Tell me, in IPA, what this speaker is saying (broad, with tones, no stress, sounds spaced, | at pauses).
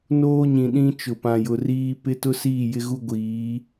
n oː˦ ɲ ĩ˨ ɗ ĩ˦ t͡ʃ ʊ˨ p ã˨ j ʊ˨ r iː˦ p ɪ˦ t ʊ˦ s iː˦˨ j ɪ˦ ɣ u˦ ɡʷ iː˨˦